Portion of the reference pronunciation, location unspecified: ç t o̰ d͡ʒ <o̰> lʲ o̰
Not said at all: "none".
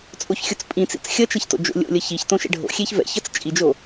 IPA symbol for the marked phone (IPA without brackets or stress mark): o̰